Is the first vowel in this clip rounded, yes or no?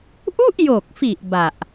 yes